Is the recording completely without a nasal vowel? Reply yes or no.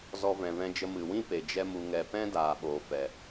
no